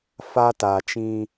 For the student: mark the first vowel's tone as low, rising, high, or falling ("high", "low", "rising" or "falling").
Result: high